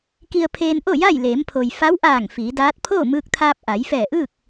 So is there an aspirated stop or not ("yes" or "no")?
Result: yes